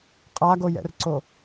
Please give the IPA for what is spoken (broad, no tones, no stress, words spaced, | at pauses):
qʼaɡojɛ̰rǀo